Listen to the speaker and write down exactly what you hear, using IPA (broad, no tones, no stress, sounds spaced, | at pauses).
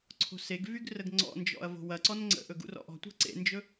ǀʰ o̤ s e ɡ v y ɡ r ə ɡ ŋ͡ǀ ɔ̰ n d͡ʒ ɔ̰ ɐ̯ v o̤ w ɐ ǀ ɔ n ŋ͡ǀ ə̰ ʔ ɵ ɡ ṵ r ɔ̰ ʔ ɔ̤ tʷ e̤ ǀ ḛ n d͡ʒ ɵ